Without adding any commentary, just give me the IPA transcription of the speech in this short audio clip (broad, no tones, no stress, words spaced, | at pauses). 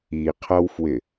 iqʰʌwfwɪ